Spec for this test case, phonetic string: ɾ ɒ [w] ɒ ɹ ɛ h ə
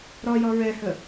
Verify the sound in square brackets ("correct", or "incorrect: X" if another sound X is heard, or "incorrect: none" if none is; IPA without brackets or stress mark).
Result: incorrect: j